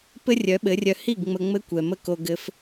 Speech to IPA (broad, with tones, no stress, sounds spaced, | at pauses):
p ɘ˦ rʲ œ˨˦ ɓ ɘ˨˦ rʲ œ˧ h i˦˨ ɡ ŋ͡m ə˧ ŋ͡m ɘ˦ kʷ ɛ˨ m ə˦ k o˧ ɡ ɘ˧ f